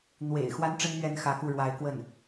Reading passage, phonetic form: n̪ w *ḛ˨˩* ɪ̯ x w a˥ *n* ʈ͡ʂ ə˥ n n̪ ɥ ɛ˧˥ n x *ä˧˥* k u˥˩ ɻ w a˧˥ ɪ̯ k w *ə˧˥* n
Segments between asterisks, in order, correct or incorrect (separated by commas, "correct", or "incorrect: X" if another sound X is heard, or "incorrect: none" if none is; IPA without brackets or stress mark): correct, correct, correct, incorrect: ə˥˩